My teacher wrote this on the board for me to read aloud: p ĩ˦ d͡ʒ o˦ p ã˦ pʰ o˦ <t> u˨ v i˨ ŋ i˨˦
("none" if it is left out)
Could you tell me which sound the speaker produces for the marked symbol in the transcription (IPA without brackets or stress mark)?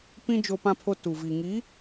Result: t